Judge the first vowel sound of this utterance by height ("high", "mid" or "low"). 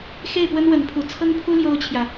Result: mid